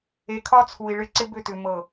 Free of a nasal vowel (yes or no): yes